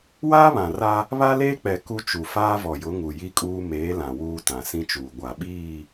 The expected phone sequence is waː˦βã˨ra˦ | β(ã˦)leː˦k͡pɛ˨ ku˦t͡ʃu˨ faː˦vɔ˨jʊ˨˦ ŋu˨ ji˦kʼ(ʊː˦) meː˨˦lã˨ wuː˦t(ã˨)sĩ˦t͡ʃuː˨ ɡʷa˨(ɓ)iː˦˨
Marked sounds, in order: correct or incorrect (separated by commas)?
incorrect, incorrect, correct, correct